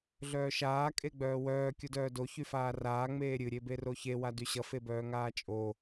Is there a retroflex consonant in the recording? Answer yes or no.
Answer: no